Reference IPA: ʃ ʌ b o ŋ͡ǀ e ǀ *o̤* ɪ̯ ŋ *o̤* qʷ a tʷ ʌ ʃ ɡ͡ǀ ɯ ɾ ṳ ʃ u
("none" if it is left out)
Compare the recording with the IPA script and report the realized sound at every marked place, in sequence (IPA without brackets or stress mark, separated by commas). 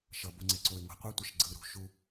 o, o̤